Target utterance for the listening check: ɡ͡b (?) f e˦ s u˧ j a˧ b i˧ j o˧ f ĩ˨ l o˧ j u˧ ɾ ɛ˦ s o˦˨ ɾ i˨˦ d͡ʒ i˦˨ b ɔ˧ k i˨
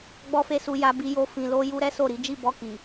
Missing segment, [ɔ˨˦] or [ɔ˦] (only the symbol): ɔ˦